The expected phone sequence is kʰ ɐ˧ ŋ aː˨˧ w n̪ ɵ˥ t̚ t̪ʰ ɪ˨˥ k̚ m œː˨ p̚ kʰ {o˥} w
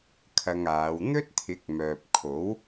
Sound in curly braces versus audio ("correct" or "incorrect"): incorrect